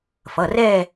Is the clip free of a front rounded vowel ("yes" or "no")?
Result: yes